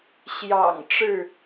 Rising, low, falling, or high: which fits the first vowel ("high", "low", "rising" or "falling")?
low